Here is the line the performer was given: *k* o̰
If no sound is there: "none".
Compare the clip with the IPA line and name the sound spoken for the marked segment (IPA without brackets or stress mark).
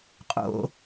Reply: qʼ